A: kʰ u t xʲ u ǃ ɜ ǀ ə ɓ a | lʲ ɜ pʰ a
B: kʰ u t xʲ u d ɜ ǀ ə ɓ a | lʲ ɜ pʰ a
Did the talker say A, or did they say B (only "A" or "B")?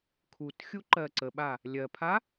A